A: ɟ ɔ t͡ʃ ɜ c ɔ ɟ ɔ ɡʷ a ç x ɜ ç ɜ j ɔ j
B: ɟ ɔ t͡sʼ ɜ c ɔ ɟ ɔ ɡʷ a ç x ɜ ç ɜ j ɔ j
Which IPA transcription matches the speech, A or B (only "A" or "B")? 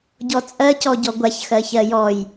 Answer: B